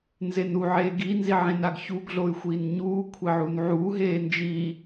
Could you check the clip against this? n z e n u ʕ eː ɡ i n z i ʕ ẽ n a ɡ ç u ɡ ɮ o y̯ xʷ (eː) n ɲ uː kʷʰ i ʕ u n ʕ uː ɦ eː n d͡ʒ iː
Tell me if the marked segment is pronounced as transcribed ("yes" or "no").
no